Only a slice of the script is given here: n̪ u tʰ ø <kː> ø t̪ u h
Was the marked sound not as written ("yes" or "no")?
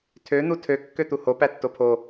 no